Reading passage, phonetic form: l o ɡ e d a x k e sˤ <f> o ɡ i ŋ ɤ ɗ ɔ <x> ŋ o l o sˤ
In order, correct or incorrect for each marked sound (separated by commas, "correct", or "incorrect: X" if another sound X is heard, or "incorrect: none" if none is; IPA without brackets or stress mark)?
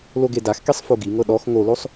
correct, correct